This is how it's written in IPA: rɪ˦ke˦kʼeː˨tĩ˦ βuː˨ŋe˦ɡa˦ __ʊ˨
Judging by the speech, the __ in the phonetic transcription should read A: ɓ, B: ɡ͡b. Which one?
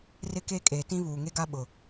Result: A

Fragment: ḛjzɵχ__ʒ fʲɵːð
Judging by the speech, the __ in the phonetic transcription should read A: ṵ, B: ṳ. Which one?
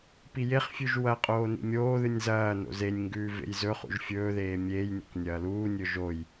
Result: A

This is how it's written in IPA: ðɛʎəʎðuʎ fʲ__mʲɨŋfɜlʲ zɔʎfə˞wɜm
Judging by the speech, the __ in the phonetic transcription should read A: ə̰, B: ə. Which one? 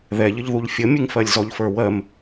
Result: B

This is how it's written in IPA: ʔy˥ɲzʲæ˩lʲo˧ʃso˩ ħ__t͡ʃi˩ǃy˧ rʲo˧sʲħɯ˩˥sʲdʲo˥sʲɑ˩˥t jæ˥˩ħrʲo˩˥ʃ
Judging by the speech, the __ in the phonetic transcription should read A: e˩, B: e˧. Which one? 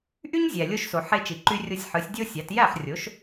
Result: B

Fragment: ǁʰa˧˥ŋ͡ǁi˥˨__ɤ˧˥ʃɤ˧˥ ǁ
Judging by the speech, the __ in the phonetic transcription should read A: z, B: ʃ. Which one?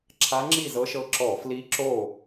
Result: A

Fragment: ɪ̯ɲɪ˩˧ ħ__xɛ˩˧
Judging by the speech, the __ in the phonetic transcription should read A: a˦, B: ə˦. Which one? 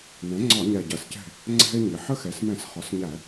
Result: B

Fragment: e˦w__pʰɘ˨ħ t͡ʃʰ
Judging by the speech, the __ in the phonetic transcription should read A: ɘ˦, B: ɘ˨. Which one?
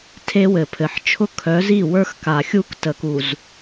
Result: B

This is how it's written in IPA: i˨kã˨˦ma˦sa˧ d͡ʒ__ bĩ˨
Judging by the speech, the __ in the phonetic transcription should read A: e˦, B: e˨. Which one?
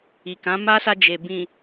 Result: B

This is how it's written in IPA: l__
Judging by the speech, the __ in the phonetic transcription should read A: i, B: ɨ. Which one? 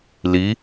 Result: A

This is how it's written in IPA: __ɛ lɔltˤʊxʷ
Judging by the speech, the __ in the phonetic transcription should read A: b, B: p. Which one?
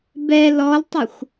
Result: A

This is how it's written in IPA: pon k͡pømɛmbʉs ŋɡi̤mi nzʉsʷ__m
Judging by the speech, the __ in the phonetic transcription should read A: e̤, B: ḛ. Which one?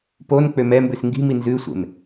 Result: B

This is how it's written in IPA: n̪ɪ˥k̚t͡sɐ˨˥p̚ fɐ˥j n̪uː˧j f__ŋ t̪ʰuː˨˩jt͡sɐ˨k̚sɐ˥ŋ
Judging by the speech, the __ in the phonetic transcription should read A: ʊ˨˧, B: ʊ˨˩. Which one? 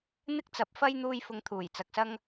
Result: A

